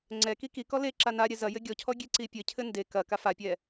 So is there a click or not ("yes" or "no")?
yes